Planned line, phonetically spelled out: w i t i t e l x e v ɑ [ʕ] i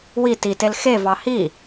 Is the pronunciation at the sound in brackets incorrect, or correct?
incorrect